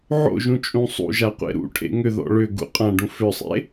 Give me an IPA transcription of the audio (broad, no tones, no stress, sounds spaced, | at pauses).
ʕ o̰ ʒ ũ t͡ʃʼ ũ sˤ ṵ ʒ a qʷ ḛ ɾ ṵ ʈʰ ḛ ŋ ʏ ð ɔ̰ ɭ ʏ ɡ ṵ qʼ ã ɖ ũ f ʏ sˤ ḛ